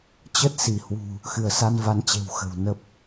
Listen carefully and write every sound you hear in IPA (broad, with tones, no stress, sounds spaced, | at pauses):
t͡ɕ ə˦˥ t̚ s i˧˩ h w ṳ˨˩ | x ɨ˧˩ ə̯ s a˧ n v a˨˦ n t͡ɕ e̤˨˩ w x ə̤˨˩ w n ə˦˥ p̚